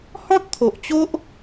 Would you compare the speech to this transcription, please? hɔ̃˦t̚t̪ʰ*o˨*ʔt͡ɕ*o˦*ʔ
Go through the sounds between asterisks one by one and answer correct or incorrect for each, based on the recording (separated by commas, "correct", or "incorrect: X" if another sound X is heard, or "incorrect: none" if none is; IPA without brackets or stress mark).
correct, correct